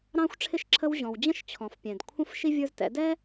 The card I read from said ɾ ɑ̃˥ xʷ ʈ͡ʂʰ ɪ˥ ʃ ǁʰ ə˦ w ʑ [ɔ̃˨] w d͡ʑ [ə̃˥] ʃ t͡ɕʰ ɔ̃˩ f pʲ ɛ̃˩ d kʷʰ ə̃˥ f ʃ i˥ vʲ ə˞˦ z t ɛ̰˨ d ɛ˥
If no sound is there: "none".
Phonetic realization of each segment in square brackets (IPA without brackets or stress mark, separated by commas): ɔ̃˨, ə̃˥